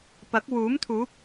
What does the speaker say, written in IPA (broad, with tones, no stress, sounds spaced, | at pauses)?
p ɐ˨˥ k̚ w uː˨˥ m t̪ʰ uː˨˥ p̚